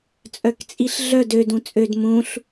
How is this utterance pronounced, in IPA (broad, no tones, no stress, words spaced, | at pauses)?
t͡sʼœkt͡sʼiɬɮœd ødũ t͡sʼød mũɬ